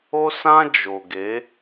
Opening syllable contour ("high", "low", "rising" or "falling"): high